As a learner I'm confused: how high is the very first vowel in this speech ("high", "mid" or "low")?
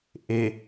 mid